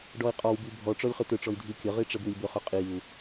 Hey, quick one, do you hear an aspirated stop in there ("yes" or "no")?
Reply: no